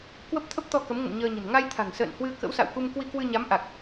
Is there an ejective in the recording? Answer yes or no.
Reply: no